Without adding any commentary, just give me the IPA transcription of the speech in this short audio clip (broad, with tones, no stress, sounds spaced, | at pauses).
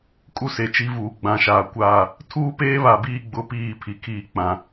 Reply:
kʼ u˦ s e˨ t͡ʃ i˦ v uː˨ ɡ͡b ã˨ ʃ aː˨ kʷ aː˦˨ | tʰ uː˦ p eː˦ β a˨ b iː˦˨ ɡ͡b ʊ˦ p iː˦˨ pʰ i˨ kʰ iː˦˨ k͡p ã˨